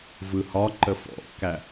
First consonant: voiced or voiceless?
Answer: voiced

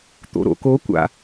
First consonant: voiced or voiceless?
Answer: voiceless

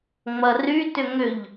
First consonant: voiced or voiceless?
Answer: voiced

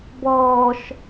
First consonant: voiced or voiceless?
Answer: voiced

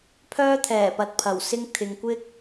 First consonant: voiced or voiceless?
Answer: voiceless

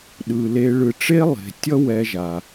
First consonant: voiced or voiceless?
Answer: voiced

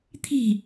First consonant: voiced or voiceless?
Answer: voiceless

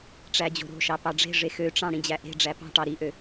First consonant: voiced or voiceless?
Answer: voiceless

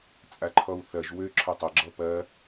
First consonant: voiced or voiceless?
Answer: voiceless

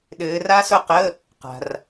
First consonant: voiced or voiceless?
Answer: voiced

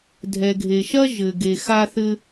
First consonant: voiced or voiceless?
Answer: voiced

